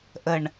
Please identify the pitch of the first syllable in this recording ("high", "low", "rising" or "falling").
low